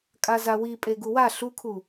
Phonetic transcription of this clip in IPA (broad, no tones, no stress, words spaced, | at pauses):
kʼazawi pʼeɡuwa ɬukʰu